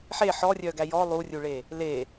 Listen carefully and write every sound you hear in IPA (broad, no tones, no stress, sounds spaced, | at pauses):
ħ e ħ ɔ rʲ œ ɡ æ j ɔ lˠ u rʲ u ɭ e | l e